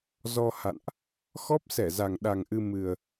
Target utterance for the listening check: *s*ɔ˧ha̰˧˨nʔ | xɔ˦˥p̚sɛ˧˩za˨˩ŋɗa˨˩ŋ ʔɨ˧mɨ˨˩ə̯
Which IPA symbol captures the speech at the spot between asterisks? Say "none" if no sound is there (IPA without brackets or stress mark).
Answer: z